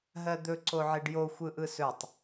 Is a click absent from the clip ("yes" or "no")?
no